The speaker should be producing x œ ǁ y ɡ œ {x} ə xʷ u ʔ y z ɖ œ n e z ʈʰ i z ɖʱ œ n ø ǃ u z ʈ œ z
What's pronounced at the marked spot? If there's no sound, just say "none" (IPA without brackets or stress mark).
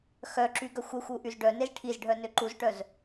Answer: xʷ